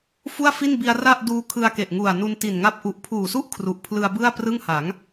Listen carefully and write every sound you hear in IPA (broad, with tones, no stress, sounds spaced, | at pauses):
f u˥˩ a̯ f i˥˩ n b i˧ a̯ r a˥˩ ʔ d uː˦˥ kʰ ɯ˧ a̯ k e˨˩ ʔ ŋ u˨˩ a̯ n u˧ n t i˨˩ n ŋ a˦˥ p̚ ʔ u˨˩ ʔ pʰ uː˨˩ s u˥˩ ʔ kʰ r u˨˩ ʔ pʰ l ɯ˧ a̯ b ɯ˥˩ a̯ p r ɯ˥˩ ŋ h a˩˦ ŋ